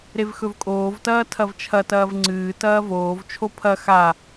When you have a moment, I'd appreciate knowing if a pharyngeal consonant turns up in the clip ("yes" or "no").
no